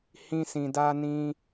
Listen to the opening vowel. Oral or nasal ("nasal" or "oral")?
nasal